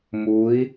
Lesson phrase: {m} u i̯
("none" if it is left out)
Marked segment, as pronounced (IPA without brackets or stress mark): m